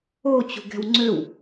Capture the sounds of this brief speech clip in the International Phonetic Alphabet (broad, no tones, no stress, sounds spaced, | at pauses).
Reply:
o t͡ɕ ṳ ɡ ɛ̤ w ŋ͡ǀ ø w